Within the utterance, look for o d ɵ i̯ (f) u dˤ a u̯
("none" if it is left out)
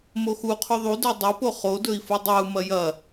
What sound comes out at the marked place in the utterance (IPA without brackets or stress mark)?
f